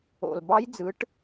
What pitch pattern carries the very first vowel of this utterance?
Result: low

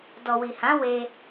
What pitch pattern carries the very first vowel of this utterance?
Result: low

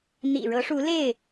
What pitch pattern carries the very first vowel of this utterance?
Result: low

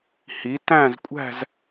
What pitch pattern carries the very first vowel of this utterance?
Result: rising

